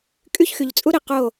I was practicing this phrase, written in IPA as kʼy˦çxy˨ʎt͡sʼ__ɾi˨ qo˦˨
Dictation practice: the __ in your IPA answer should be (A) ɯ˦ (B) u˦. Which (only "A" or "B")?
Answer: B